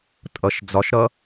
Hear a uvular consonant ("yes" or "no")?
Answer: no